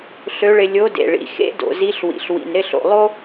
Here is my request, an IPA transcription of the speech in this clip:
ɬ ø˧˥ ɭ ɪ˧ lʲ o˧˥ d ḛ˩ ɭ ḭ˩˧ x ḛ˧˥ d o̰˩ z i˧˥ ɬ w ḭ˩ ɬ w ḭ˩ n ɾ ɪ˧ ɬ o̰˩ lˠ o˥

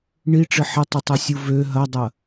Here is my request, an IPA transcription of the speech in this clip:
ɳ i ʈ͡ʂ ɪ ħ ɪ tˤ ɪ tˤ ø sʲ u v ø ɦ ɐ dˤ ɐ

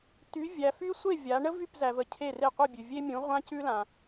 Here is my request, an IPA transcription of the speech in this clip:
t y˨˦ vʲ æ˨ f y˦ sʷ e˥˨ vʲ a˨˦ ɳ ə˦ v y˥˨ p z æ˨ v ə˨ cʰ e˥˨ r e˥˨ qʷ ə˥˨ bʲ ʉ˨ vʲ e˦ mʲ ũ˨˦ ʁʷ ã˦ c ʉ˦ l ã˨

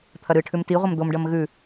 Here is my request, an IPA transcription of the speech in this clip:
t̪ʰ ɐ ɾ ɨ ʈʰ ʉ m t i ʁʷ ɐ m d̪ o m ɖ ɐ m ɣ ʉ

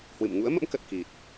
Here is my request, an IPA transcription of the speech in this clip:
h w ɨ̰˧˨ m ŋ ṵ˧˥ ə̯ m ə̰˧˥ m k ə˨˩ t̚ k i˨˩ t̚

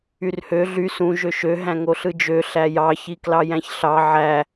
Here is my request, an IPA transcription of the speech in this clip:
y r h ø ɮ y s ũ ʒ ø ʃ ø ɦ æ̃ ŋ o ɬ ɯ d͡ʒ ø ɬ æ j ɑ ç i k l ɑ j æ̃ ç ɬ ɑ ʕ æ

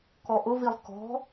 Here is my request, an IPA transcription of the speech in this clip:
k ɔ ʔ ʊ v i lˠ k ɔ̤

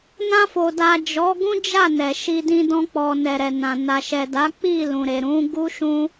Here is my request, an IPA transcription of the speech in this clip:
n ã˧ f o˨ d a˨ d͡ʒ ɔ˨˦ ɡ ũ˦ d͡ʒ a˦˨ n ɛ˨ ʃ i˧ d ĩ˧ d ɔ̃˧ k͡p ɔ˨ n ɛ˨ ɾ ɛ˨ n ã˨ n a˨ ʃ ɛ˨ d a˨˦ k͡p i˦˨ l ũ˨ ɾ e˨ ɾ ũ˨˦ ɡ u˦ ʃ ũ˦

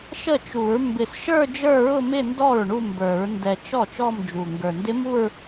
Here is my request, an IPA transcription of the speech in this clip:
ʃ ə˥˩ t͡ʃ u˨˩˦ ɹ m b ɪ˨˩ s ʃ ə˞˥˧ d͡ʒ ə˞˥˧ ɹ ʊ˥˧ m ɪ˥˧ n d ɔ˥˩ ɹ ɳ u˥˧ m b ə˞˨˩˦ ɹ n d ɛ˨˩ t͡ʃ ɔ˥˩ t͡ʃ ɔ˥˧ m d͡ʒ u˨˩ ŋ ɡ ə˞˨˩ n d ɪ˦˥ m u˥˧ ɹ

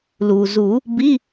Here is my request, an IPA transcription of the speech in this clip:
l uː˩ z u˨˩˦ | b i˧˥˧

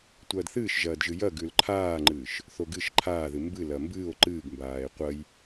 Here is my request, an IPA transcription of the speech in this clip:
tʷ ɐː d θ ɨː ʃ ʒ ɐː d ʒ ɨ j ɐ ɡ ʉ l ǃʰ aː ŋ͡ǃ ɨː ʃ | θ o ɡ ɨ ʃ ǃʰ aː ð ɨ m b ɨ l ɐ m b ɨː o̯ ǃ ɨː ɡ m b aː e̯ qʷ ɐ j

